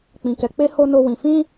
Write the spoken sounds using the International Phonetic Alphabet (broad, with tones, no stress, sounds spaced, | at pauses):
k͡p ĩ˧ k ɛ˧ k͡p e˦ h o˦ n o˦ w ĩ˧ f ĩ˦